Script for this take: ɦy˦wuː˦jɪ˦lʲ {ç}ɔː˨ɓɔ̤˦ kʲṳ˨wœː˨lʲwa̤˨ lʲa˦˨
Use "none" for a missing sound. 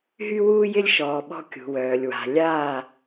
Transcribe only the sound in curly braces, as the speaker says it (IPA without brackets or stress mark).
ʃ